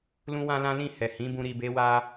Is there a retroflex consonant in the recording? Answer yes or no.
no